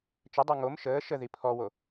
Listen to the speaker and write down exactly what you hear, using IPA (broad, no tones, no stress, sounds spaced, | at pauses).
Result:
t͡ʃ ə dˤ o ŋ o m ʃ əː ʃ ə ð i pʰ ɔ w o